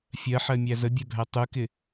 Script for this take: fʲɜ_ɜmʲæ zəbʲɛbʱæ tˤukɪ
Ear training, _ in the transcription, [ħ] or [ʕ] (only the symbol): ħ